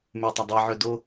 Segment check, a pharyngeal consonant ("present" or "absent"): present